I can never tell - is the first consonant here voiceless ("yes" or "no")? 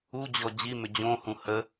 no